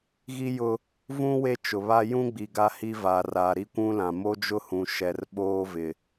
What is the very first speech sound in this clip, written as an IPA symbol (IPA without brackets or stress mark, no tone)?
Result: ɣ